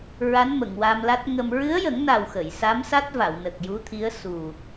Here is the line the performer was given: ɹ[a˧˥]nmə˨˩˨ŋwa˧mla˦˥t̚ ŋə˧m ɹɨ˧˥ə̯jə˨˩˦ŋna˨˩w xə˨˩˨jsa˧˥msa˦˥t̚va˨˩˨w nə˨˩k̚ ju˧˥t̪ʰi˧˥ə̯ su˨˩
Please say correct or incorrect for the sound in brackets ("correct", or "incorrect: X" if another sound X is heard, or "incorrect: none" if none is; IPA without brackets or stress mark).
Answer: correct